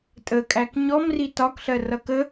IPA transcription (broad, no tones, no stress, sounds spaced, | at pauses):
tʼ ə kʼ æ k ɲ ɔ m r i t ɒ k ɬ ɜ r ʌ k ə